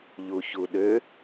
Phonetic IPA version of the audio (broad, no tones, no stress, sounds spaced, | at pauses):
ʎ u ç u ɗ ø